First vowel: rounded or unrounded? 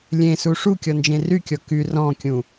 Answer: unrounded